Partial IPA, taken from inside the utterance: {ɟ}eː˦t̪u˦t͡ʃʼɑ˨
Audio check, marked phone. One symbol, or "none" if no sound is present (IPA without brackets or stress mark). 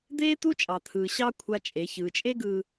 d̪